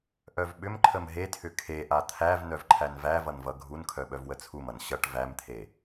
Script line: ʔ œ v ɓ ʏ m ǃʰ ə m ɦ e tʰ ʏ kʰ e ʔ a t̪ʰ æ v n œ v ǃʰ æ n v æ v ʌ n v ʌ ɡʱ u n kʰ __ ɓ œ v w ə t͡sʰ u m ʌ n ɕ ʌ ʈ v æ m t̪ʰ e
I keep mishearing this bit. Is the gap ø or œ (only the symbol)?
œ